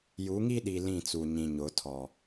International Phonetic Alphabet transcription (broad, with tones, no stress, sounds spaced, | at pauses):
j u˨˦ ŋ i˦ ɗ i˨ l ĩ˦˨ t͡s u˨ ɲ ĩ˨ ɲ ʊ˨˦ tʰ ɔ˨